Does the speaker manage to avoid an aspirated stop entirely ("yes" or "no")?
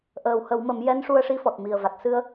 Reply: yes